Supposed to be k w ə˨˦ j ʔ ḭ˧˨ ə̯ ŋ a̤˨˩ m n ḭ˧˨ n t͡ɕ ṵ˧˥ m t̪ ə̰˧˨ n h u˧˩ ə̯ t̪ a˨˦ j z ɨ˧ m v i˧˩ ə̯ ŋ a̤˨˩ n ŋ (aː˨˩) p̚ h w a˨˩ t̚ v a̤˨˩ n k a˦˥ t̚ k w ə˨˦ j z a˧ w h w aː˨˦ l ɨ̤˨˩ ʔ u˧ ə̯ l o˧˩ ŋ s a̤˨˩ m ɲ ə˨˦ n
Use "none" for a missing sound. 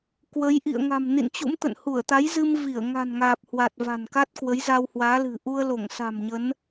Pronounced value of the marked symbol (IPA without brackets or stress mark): aː˨˩